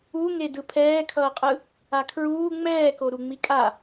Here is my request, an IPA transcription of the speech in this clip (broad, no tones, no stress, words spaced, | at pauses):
uŋe dɯpʰɛːkʰʌːqʼɯ | akʰɹuː ŋ͡mɛːko ɾuŋ͡mikʼa